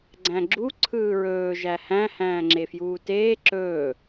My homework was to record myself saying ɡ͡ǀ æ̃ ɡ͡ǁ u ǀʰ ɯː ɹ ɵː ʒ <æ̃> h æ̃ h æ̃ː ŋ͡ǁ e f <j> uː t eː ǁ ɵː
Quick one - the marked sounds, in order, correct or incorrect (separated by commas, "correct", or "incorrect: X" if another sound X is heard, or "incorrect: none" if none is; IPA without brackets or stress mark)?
incorrect: æ, correct